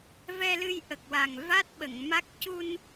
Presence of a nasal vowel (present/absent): absent